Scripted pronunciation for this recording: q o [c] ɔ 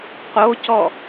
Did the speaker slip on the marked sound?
no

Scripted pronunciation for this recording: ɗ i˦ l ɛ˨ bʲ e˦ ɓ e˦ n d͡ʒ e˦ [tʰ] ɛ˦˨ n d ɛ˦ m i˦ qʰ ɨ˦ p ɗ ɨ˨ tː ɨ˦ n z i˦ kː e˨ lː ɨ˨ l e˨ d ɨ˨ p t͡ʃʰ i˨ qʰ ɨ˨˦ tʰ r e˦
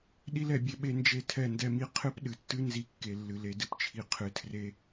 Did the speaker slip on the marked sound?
no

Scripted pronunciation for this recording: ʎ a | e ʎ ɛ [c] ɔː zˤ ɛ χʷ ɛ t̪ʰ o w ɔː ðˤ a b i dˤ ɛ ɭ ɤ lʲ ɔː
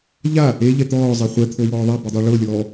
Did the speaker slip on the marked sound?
yes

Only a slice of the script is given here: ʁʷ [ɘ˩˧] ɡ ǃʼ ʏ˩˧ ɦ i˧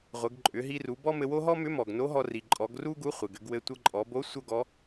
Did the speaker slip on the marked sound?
no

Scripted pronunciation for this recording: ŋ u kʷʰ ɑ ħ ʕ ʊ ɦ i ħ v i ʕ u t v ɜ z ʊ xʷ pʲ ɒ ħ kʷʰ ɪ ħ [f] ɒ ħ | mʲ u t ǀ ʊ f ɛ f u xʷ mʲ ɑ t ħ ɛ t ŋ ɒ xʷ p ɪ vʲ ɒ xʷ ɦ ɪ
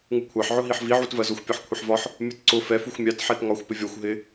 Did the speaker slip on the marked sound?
yes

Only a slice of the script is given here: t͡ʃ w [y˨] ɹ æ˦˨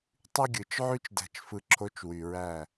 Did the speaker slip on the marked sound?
no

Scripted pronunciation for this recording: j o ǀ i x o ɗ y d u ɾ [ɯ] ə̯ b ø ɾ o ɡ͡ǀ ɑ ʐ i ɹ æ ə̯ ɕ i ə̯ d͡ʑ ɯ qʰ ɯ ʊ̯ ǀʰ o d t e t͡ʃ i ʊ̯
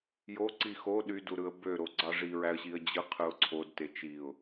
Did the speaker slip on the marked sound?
no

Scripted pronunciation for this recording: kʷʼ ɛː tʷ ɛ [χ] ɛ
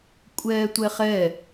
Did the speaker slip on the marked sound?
no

